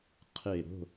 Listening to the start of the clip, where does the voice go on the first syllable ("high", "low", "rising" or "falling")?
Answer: falling